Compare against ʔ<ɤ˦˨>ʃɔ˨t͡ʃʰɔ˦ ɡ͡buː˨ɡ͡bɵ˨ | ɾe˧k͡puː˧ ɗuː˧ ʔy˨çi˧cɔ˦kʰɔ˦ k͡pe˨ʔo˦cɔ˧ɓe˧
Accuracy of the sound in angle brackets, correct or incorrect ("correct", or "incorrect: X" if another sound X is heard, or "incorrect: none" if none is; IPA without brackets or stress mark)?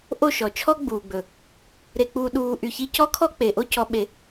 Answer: incorrect: o˦˨